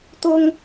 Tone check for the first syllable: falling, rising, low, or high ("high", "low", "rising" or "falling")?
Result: high